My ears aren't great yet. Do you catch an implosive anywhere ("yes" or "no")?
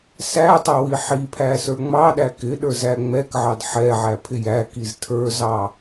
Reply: yes